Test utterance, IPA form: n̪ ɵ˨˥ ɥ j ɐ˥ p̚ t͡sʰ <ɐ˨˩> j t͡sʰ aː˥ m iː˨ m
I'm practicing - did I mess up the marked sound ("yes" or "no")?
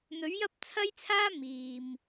yes